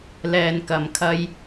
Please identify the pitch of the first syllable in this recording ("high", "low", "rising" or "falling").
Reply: low